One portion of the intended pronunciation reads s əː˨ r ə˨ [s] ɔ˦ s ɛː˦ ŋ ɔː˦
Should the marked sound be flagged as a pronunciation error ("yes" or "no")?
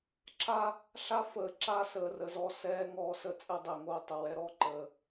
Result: yes